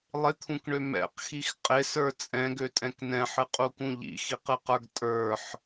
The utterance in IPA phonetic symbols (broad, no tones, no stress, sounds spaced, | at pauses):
lˠ ɪ t̪ʰ ũ k ɳ ø m ɛ̰ q x i x qʼ ɪ s ə˞ t͡sʼ ɛ̃ ɡ ø tʼ ɛ̃ k n ɛ̃ ħ ɨ qʼ u k ũ ʎ ḭ x i q ɨ q ə˞ ɡ tʼ ə˞ ħ